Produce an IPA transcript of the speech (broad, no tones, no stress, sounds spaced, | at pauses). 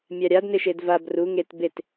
mʲ a ɾʲ a d n ɪ ʃ e d v a b r u ŋ e t b e t